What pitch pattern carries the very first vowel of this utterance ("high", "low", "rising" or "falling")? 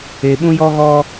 low